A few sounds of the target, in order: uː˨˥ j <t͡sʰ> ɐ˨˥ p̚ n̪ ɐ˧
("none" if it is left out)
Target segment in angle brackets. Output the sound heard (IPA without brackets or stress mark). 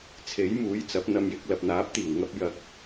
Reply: t͡s